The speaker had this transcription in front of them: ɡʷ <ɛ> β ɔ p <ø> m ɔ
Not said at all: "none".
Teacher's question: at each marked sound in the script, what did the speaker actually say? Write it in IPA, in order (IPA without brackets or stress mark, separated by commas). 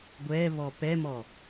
ɛ, ɛ